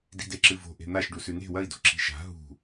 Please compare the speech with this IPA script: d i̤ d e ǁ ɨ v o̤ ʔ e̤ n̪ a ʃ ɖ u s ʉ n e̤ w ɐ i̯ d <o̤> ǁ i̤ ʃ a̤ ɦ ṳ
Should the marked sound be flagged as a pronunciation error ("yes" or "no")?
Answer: no